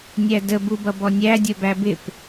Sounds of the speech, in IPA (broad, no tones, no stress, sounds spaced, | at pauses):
nʲ æ d ə b u b ʌ b ɔ nʲ æ dʲ ə˞ b æ b ɪ p